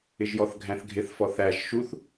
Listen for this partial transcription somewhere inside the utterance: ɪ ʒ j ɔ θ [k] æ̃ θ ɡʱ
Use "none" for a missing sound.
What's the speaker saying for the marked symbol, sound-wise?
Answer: ɡʱ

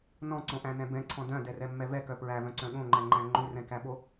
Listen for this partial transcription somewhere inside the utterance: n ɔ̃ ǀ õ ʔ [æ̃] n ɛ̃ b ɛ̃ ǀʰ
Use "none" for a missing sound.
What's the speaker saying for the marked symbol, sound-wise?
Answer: æ̃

